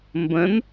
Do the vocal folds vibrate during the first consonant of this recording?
yes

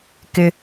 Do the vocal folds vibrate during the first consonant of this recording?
no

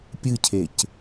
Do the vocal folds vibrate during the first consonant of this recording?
no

